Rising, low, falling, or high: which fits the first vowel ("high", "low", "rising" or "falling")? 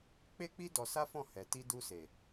high